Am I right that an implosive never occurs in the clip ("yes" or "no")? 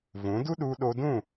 no